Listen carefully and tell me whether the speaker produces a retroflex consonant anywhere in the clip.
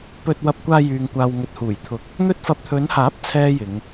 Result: no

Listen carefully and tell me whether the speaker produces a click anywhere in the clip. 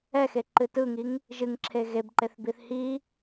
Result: yes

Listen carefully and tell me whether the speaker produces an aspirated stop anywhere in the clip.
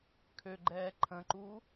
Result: yes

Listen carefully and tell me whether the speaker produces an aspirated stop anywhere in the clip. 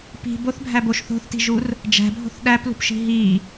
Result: no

